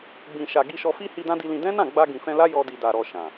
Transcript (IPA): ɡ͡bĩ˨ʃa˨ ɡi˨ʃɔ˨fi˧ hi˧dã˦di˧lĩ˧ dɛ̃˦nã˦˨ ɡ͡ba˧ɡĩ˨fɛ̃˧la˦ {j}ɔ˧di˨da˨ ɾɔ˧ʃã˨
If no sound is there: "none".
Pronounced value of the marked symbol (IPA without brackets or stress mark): j